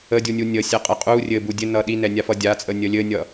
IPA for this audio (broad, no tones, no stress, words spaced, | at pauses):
ədʲunʲu nʲə sʲɛqʼə qʼu rʲɘ budʲɘnʌ ɗinɛnʲa fʌdʲat͡sʼə nʲəlʲɘnʲʌ